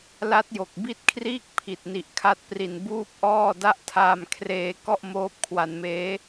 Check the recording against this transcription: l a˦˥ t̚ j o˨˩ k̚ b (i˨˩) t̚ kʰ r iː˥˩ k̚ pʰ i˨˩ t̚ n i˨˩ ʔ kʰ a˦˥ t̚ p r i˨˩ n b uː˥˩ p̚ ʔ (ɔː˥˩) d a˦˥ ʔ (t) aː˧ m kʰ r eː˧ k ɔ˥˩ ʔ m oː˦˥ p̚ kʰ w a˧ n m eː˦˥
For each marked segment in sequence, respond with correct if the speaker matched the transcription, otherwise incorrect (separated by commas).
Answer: incorrect, correct, incorrect